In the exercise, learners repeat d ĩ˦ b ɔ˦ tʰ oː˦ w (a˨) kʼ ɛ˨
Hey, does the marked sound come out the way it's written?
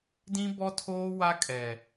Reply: no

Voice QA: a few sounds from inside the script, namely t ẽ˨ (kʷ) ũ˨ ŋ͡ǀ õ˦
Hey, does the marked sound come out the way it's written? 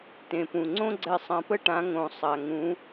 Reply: no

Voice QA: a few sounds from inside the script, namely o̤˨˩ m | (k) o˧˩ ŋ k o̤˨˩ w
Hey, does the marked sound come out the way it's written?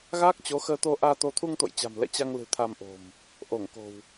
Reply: no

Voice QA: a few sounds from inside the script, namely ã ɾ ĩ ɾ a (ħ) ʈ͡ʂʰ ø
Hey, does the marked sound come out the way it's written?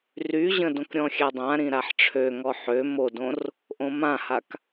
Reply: yes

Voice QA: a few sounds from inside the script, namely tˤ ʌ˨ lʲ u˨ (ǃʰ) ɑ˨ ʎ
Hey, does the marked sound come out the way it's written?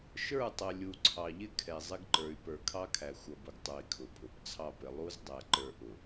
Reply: no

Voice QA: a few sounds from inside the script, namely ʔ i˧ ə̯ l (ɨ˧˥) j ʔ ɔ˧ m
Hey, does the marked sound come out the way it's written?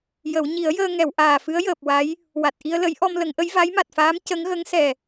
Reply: no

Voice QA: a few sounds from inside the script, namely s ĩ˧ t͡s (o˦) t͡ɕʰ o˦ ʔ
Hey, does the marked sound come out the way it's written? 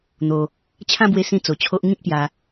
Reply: no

